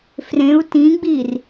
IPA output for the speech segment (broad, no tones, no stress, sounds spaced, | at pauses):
f r ẽ u̯ t ĩ ɡ͡b i r